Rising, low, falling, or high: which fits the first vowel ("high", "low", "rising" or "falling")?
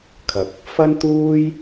low